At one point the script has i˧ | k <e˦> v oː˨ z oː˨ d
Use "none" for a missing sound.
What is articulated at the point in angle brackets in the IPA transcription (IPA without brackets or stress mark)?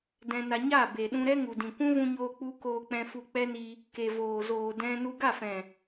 e˨